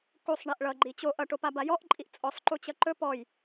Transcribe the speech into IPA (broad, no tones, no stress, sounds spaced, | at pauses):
k u sˤ ɳ i ʔ ɭ ʌ ɡ͡ǃ i t͡ɕ o ʔ ʌ ʈ o p a b a j ɔ ʔ ǃʼ i ʔ t͡sʼ ɔ sˤ ǃ u t͡ɕ ʌ ǃ ɵ p ɔ j